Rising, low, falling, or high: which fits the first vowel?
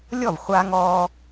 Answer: falling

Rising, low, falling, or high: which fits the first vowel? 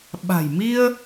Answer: low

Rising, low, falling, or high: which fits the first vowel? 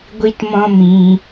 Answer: high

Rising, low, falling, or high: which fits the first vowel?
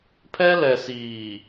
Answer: high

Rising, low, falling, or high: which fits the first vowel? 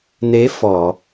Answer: rising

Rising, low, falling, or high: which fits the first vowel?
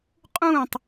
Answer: falling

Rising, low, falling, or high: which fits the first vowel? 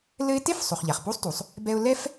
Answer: high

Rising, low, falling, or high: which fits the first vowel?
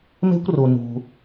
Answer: high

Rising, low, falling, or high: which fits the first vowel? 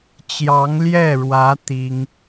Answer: rising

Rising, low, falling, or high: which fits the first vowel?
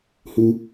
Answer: high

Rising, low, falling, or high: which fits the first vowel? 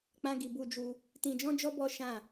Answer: high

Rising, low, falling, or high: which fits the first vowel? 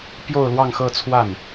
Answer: falling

